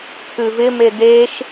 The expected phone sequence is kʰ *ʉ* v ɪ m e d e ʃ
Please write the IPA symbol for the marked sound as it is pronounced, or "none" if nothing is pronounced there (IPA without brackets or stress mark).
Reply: ʉ